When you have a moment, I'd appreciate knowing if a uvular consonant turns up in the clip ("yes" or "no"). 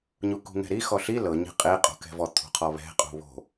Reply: yes